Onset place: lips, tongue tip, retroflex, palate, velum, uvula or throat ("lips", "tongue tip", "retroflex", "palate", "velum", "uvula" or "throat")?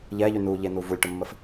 palate